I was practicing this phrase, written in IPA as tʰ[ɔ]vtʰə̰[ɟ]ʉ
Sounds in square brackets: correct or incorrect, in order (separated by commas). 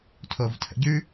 incorrect, correct